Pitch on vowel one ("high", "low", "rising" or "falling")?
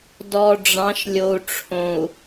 low